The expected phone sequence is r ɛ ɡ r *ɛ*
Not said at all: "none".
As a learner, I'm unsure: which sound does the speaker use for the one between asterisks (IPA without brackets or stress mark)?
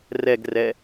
ɛ